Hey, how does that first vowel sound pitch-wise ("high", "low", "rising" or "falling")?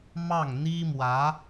falling